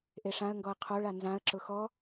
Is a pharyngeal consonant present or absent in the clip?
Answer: absent